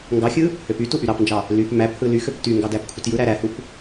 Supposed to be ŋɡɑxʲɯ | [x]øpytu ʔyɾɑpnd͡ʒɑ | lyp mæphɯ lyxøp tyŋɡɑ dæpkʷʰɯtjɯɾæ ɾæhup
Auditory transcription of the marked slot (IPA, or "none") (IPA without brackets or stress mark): h